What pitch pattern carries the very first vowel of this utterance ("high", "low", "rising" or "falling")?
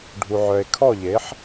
low